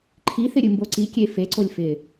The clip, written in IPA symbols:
ǃʰ i θ ɪ ɾʲ ɨ m b o ǀ i kʲ e f e ǀ o lʲ f ɪ

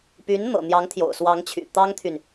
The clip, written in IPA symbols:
p y˧˥ n n̪ ɤ̰˨˩ n̪ j ɑ˧˥ ŋ t̪ʰ j o̰˨˩ ʊ̯ s w ɑ˧˥ ŋ t͡ɕʰ y̰˨˩ t̪ ɑ˥ ŋ t̪ʰ y˨ n

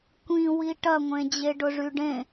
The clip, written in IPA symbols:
kʷ ĩ w i ʈ ɐ ŋʷ ẽ d͡ʑ e ɖ ʊ ʐ y ɖ ẽ

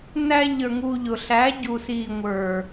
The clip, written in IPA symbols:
n æ˧ ʎ ə˞˨ ŋ u˧ ʎ ʊ˨ ɬ æ˨˦ ɟ u˨ s iː˨ ŋʷ ə˞˨

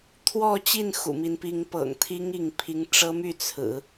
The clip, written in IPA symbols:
t̪ʰ w ɔ˥˧ t͡ɕ i˥˩ n x ṵ˨˩ m i˦ n p i˧˥ ŋ p ɤ̰˨˩ ŋ t̪ʰ i˥ ŋ i˥˩ ŋ pʰ i˥ ŋ ʈ͡ʂ ɤ˥ m y˥˩ t͡sʰ ɹ̩˨˩˦

